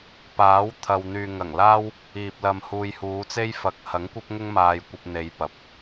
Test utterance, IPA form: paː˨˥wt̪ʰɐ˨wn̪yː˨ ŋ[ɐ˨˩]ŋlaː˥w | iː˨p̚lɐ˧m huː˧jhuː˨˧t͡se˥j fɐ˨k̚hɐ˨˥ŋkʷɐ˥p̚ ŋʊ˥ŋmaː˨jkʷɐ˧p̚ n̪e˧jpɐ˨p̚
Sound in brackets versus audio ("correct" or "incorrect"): correct